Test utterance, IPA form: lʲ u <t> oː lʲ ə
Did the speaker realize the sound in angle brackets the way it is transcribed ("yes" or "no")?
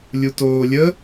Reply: yes